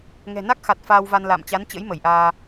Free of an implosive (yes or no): yes